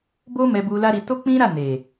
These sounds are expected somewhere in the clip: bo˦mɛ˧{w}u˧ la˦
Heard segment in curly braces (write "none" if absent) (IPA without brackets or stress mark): b